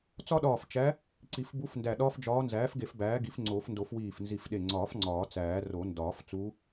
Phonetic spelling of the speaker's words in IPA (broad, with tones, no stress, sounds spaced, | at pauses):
t͡s ɒ˥ ɗ ɒː˧˩ f t͡ʃ æ˧˥ | ǀ i˨˩˦ f b u˧˥ f n d æ˧˩ ɗ ɒː˥ f d͡ʒ ɒː˧˥ n z æː˩˥ f ɡ e˨˩˦ f b æː˩˥ ɡ i˩˥ f ŋ͡ǀ oː˨˩˦ f n d o˨˩˦ f w iː˧˩ f n z i˧˩ f ɗ e˧˩ ŋ͡ǀ ɒː˨˩˦ f ŋ͡ǀ ɒː˨˩˦ t͡s æː˨˩˦ r o˨˩˦ n d ɒː˨˩˦ f t͡s u˧˥